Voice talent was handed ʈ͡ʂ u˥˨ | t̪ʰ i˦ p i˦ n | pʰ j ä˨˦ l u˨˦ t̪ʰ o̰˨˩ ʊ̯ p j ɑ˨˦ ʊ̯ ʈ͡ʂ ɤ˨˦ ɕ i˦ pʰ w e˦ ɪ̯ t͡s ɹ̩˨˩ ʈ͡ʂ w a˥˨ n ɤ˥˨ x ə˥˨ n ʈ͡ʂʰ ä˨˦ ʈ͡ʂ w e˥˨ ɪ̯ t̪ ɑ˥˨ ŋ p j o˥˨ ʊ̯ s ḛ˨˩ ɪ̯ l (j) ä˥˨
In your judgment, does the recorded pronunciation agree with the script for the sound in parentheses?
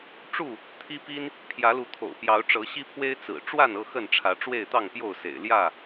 yes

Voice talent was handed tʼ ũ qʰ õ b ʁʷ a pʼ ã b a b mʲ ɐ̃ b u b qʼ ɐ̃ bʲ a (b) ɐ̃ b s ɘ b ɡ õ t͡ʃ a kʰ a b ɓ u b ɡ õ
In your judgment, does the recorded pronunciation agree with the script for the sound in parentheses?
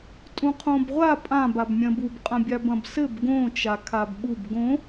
yes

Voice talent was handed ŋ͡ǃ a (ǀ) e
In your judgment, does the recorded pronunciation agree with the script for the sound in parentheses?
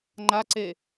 yes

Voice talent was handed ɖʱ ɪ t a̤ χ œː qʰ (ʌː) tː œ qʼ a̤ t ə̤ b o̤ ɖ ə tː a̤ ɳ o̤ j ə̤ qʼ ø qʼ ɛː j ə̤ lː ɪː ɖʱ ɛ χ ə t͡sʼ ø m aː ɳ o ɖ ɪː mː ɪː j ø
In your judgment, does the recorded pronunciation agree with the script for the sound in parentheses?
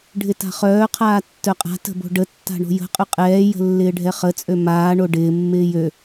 no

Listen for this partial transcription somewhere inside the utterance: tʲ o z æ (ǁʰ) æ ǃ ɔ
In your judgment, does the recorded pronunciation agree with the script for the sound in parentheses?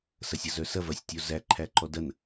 no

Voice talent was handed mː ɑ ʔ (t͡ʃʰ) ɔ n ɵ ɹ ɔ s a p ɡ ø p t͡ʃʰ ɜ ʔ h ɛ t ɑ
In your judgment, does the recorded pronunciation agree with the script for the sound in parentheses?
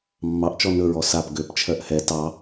no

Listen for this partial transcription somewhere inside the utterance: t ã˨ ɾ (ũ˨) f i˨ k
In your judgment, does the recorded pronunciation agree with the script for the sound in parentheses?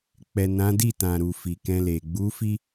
no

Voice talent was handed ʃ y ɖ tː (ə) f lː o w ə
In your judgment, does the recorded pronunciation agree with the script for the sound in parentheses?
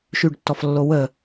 no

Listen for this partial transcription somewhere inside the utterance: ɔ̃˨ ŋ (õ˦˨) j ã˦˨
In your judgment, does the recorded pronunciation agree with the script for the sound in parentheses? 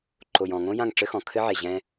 no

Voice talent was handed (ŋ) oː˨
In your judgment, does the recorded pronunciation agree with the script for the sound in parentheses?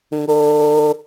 yes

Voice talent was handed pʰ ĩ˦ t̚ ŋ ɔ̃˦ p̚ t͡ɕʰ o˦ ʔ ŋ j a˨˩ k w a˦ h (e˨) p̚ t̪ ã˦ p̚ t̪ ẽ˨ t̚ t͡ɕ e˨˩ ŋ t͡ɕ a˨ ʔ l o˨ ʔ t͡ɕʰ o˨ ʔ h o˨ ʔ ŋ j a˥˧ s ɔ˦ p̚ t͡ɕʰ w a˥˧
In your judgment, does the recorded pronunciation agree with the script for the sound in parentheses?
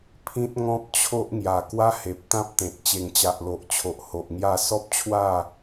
yes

